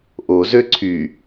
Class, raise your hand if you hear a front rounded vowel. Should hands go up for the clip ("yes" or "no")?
yes